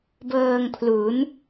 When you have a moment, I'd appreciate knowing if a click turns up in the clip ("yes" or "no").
no